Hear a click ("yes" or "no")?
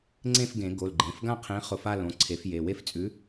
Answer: yes